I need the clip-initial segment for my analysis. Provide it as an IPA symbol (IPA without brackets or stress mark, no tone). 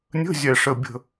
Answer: nʲ